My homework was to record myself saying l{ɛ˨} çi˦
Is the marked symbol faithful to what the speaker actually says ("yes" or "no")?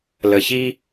no